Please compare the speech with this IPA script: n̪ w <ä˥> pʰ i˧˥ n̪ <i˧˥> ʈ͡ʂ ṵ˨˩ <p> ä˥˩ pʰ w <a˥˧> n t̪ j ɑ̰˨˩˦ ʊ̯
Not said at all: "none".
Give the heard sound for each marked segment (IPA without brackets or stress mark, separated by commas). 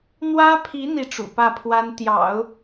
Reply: ä˥, i˥˩, p, a˥